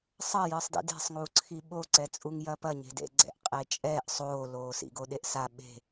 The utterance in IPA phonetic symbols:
sˤɐ jɨːsˤdḭde̤sˤŋuː ǀʰiɓoǀɛt͡sʼuŋ jɐpɐɲe̤dḛ ɡ͡ǀɛ̰ʔqʼet͡ʃʼɛːʔ sˤoːloː sḭɡoɗeʔsa ɓe̤

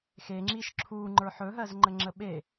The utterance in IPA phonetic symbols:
xeŋ͡ǁiʃ ǁʰu ŋ͡ǃə˞ħɵɦɜzŋ͡ǃə ŋ͡ǁəɓe

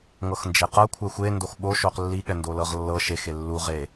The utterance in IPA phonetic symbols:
ŋɤxnd͡ʒeqɤ kʷʰɛxʷe ndoxɓoʃoq lːiɠɛ ndolɤʁlːɤ ʃexe lːu ʁe

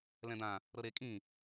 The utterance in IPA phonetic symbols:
lɛ̃d̪ã | ɾɤɾe kʼĩ

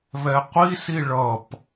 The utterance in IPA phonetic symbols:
βɛqʷisi ɭʌp

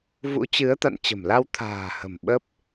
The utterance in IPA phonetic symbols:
vṵ˧˥t͡ɕɨ˨˦ə̯ t̪a̰˧˨nt͡ɕə̤˨˩mla˧w t̪ʰa̤ː˨˩hə̤˨˩m ɓə˦˥p̚

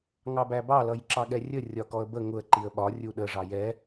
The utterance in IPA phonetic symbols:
ŋɑbæbɑ lʌjǁɑɠɛrʲə rʲɒkɔə̯bə ŋʊə̯ ǃiə̯ɓɒ rʲuɗə ʐɑjɛ

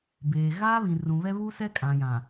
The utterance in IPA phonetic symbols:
beː˨ ɣaː˦βĩ˨rũ˨βɛ˦ βu˦sɛ˦ kʼã˨jã˨

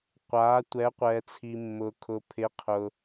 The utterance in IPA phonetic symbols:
qʷaː˩˧tʷɛ˩˧qʷɛː˩t͡sʰi˩ mːʊː˩kʰʊ˩ pʰɪ˩˧qʰʊ˩

